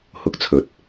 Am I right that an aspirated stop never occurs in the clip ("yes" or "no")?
no